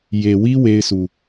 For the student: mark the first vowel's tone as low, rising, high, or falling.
low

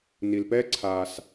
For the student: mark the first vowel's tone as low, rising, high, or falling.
low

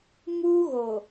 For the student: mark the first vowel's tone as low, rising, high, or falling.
high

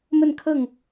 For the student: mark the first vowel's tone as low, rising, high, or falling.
falling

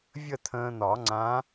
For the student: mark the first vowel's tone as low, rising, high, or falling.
falling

